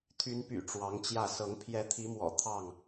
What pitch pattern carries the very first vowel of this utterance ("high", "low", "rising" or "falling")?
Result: rising